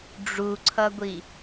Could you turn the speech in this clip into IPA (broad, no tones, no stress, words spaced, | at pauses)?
ɖ͡ʐuǀʰʌɡʷi